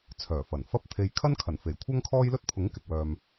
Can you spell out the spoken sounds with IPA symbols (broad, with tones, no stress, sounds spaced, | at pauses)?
t͡sʰ œː˨˩ f ɐ˨˩ n f ɐ˥ p̚ t̪ʰ e˧ j kʰ ɐ˥ n kʰ ɐ˨˩ n f e˨˩ j kʷʰ ɐ˥ ŋ kʰ ɔː˥ j l ɵ˥ t̚ pʰ ʊ˨˥ ŋ k ɪ˨ k̚ w œː˨ m